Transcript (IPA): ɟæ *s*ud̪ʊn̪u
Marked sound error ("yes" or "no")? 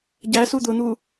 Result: no